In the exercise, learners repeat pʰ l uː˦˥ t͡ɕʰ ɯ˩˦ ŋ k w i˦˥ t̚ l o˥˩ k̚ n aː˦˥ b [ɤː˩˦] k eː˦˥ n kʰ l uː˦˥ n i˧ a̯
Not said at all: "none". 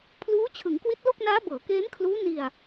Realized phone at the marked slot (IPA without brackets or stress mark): ɤː˩˦